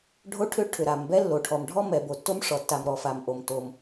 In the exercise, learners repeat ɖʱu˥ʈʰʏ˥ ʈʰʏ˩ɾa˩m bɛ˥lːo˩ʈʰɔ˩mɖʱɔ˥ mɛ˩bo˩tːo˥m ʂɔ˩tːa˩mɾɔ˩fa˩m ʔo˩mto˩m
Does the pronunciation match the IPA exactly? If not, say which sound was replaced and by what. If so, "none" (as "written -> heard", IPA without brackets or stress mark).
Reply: u˥ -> o˥